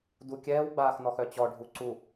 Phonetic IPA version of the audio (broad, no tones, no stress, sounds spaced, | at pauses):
d u kʲ ɛː w ɡ͡b aː x n ɔ x œ t͡ɕ ɔ ɖʱ u ǀ u